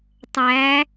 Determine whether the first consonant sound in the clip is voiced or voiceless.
voiceless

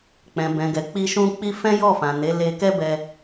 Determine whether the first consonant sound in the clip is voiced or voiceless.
voiceless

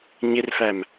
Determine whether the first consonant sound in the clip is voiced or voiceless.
voiced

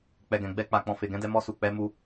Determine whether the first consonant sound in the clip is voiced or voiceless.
voiceless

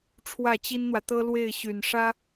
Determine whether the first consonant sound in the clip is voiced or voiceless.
voiceless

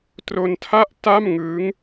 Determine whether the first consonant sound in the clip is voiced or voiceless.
voiceless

